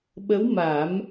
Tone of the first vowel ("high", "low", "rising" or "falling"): rising